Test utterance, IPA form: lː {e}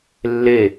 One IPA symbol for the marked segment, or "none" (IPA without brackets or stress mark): e